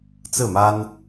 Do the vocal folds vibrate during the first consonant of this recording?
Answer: no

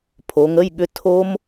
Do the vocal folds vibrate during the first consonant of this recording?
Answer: no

